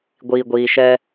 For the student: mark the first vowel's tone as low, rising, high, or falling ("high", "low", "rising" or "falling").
low